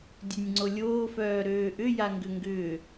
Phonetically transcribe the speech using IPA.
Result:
dʲønʲŋ͡ǀolʲoːfœː ɾøːʔʏ jaŋɡʏŋɡʏː

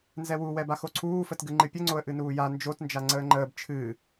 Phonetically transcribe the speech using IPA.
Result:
nzɛwuwɛba xoǀʰuːfət ɡɨŋ͡ǃɨpʲəŋ͡ǀoə̯ ʔɨnuːja nd͡ʒotnd͡ʒa ŋ͡ǀəːŋ͡ǃəːb t͡ʃʰɨ

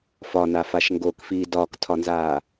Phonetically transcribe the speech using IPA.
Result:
fɒnafaʃ ŋɡokfiː dɒːktʰɒnzaː

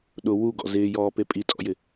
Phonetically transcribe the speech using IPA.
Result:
ɗʊ wuɡɔ̰ zɪːjɔːpe pʼitʼɔ̰jɪ

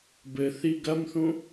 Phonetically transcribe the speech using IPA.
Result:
bɘθi ɡɐmθũ

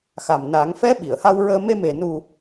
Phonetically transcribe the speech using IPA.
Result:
xa˨˩m na˨˩˦ŋ fɛ˧˥ ɓi˨˩˨ə̯ha˧wɹəː˧ me˧me˨˩ nu˨˩

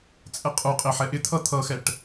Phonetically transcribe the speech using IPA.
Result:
t͡sʼɛqʼuqʼɪ ħɛʔɪt̪ʰʌ t̪ʰʌxɛʈ

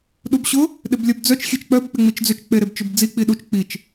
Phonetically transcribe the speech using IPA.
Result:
ɗubɕʊ | ɗɪblʲœbd͡zœt͡ʃ xʲet͡ʃk͡pœb k͡pɪŋ͡mit͡ʃd͡zʏt͡ʃ k͡peɾebt͡ʃʏbd͡zi k͡piɗut͡ʃ k͡pit͡ʃ

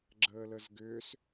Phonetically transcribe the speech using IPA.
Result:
ɡ͡ǁəːləzɡʏs

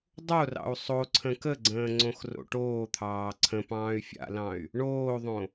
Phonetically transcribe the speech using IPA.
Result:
dˤorɑ̰u̯ sˤoǀʰə̃ kəɡ͡ǀə̃ː ŋ͡ǀõxro̰ʈoːt̪ʰɑː ǀʰə̃pɑ̃ːy̯ fʲa̰lɑ̃y̯ | ɳoːðˤõ

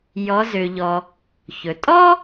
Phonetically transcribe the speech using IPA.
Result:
jɔ˩˧zø˩ʎɔː˩ | çɵ˩ tʼɔː˥

